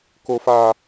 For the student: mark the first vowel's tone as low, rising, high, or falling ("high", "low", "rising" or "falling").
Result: low